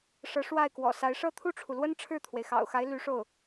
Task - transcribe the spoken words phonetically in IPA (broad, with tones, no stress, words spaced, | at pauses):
ʂɤ˧˥ʂwa˥˩ɪ̯kwɔ̰˨˩sa˧˥ɪ̯ ʂɤ˥˧t̪ʰu˥˩ʈ͡ʂʰu˩lwə˥n ʈ͡ʂʰɻ̩˥˩t̪ʰwe˩ɪ̯xɑ̰˨˩ʊ̯xa˧˥ɪ̯ ly˧˥ʂo˥˩ʊ̯